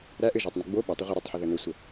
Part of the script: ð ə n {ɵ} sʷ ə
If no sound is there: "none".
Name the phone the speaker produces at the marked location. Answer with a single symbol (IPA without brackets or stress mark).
ɵ